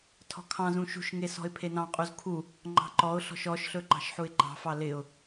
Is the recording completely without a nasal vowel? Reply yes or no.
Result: no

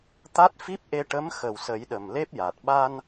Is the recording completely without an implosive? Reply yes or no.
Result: no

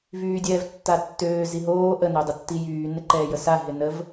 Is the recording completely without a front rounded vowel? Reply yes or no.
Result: no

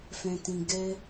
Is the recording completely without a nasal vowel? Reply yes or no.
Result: no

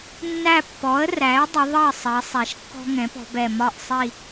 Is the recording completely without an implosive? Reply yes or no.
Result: yes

